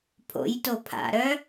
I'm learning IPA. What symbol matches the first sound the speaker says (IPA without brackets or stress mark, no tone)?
pʰ